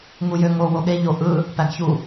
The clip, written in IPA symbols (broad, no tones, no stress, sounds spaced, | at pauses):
ŋ u j ø ŋ o w o ɠ e ʎ o ʔ ɯ | p æ ɡ ç u